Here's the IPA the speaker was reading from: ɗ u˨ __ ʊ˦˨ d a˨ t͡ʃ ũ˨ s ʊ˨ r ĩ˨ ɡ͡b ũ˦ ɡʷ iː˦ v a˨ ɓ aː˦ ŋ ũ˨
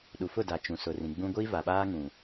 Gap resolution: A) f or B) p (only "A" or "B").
A